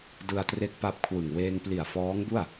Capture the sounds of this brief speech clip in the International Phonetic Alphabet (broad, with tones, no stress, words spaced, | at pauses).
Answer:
dɯ˧a̯tre˦˥k̚ pa˦˥p̚kʰwɯ˨˩ŋ weː˧ŋpli˨˩a̯ fɔː˦˥ŋbu˥˩a̯